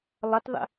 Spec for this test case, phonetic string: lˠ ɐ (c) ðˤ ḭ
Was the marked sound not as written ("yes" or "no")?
yes